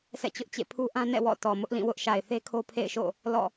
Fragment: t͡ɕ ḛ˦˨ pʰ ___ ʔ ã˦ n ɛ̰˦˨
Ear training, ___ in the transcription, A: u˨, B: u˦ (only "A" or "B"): B